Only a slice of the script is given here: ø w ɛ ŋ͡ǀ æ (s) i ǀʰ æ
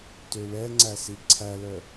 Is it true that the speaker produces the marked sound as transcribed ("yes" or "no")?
yes